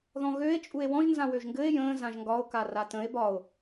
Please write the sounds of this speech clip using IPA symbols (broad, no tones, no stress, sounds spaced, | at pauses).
ð ɔ̃ ɣ ø e̯ t͡ʃʼ u e̯ w ɔ̃ ʒ n z ã w ø ʒ ŋ ɡ ɘ e̯ j ə̃ː z ã ʒ ŋ ɡ ɒ o̯ k a r a t ə̃ e̯ b ɒ o̯